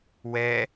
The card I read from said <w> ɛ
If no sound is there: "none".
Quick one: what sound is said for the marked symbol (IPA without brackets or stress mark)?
w